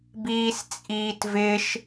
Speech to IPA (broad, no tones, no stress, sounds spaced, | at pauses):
b iː s t͡sʼ iː t v ɪ ʃ